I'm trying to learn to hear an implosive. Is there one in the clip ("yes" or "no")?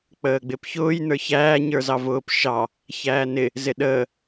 yes